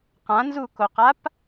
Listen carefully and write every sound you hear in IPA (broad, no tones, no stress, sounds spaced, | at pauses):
q ã n z u k o q a p